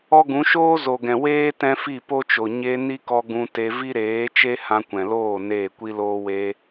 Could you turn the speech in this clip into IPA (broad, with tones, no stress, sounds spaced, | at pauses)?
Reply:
ɔ˦ ɡ ũ˨˦ ʃ oː˦ z o˨ ɡ ɛ̃˨ w eː˦ t ɛ̃˦ f i˦˨ p o˦ t͡ʃ o˨ ɲ e˧ n i˦ k ɔ˧ ɡ ũ˧ t e˧ v i˦ ɾ eː˨˦ t͡ʃ e˦ h ã˧ kʷ ɛ̃˨ l oː˦˨ n eː˦˨ kʷ i˦ l oː˦ w e˧